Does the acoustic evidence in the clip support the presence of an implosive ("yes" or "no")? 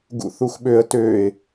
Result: yes